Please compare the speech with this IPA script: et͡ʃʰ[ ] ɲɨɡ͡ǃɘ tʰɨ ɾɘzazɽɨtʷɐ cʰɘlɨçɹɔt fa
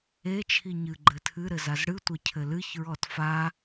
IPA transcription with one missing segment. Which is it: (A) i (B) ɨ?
A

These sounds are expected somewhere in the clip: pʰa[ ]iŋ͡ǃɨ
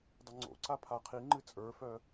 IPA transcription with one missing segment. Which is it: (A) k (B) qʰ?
B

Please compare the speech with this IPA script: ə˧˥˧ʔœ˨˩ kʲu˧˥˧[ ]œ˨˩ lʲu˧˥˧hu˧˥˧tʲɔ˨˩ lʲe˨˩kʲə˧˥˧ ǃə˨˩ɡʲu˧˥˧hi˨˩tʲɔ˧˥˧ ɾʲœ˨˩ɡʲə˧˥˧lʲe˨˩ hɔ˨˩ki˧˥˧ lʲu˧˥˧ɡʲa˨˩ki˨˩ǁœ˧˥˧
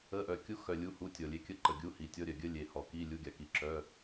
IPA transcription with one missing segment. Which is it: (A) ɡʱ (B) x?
B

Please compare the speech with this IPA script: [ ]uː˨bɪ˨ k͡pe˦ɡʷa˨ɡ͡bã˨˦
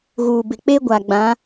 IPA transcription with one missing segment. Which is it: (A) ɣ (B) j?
A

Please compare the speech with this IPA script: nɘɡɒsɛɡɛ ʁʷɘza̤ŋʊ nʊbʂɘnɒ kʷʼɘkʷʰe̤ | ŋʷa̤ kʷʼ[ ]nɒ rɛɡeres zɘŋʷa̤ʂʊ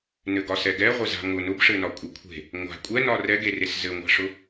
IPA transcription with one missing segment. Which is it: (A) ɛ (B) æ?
A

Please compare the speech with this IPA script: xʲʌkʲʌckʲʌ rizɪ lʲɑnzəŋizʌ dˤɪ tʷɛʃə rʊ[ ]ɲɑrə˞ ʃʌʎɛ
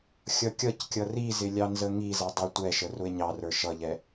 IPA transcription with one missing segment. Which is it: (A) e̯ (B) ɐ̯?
A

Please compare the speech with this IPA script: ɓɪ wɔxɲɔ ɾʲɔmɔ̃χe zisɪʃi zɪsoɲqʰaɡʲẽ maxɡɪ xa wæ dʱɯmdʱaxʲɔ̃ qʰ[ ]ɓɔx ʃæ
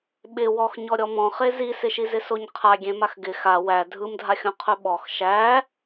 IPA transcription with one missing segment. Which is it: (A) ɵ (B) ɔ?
A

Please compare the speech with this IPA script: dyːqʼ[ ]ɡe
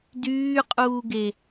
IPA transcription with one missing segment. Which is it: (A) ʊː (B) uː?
B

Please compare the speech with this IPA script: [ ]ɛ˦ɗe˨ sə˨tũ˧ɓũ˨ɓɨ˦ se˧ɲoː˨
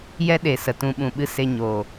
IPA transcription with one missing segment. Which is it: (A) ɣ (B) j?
B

